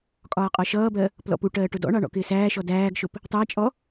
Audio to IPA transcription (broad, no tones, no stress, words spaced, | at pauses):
kʼɒːqʼɒʃʌːbɜ | plɔ̰puʈɜː ʈʊdɔ̰ɳɑ ɳɔ̰kɪːsæːʃɔ dæːɡʃʊp | tˤæt͡ʃʼɔ